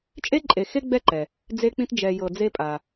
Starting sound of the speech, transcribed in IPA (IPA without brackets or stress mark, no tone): t͡ʃʼ